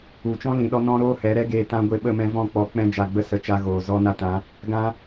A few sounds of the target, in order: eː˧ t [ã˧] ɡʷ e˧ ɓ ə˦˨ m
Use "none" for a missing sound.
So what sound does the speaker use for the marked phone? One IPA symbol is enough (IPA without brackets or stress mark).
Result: ã˧